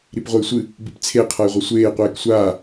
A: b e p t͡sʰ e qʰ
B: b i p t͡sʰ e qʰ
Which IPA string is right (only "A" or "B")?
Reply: B